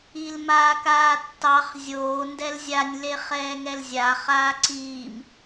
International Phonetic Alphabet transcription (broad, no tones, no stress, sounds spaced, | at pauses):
i l m aː k aː tː ɑ χ zʲ oː n d ɛ l zʲ a nʲ l e χ ɛː ŋ ɛ l zʲ a χ aː ǀ iː m